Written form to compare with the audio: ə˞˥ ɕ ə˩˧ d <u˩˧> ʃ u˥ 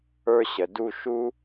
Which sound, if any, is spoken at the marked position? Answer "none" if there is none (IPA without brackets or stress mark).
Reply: u˥˧